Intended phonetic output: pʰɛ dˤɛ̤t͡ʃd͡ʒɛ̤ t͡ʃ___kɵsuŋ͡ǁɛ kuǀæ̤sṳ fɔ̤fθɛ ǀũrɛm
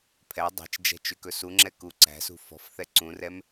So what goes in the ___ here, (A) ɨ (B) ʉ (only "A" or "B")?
B